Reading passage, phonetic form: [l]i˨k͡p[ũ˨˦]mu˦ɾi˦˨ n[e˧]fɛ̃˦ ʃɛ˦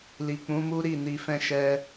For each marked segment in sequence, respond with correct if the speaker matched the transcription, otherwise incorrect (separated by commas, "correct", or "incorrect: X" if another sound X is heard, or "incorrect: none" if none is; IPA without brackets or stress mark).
correct, correct, incorrect: i˧